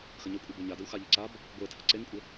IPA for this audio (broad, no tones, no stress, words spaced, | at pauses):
xəɲəkʷʼɯbe ɲadəw xaʎəǀab | ɡʷetʰə ǀeŋkʷʼə